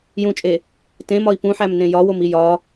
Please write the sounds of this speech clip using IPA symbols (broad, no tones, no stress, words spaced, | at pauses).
jũt͡ʃʼe | tẽmɒi̯ pũħæmnẽ jɒwomi jɒ